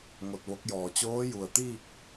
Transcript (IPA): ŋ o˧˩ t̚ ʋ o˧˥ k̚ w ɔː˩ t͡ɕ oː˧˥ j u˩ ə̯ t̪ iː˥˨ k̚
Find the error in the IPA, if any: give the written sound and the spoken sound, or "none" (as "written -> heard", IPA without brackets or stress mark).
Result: w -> j